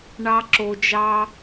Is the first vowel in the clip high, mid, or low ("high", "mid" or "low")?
low